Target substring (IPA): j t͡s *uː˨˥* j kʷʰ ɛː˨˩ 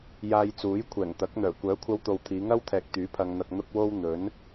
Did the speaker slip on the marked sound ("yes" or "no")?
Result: no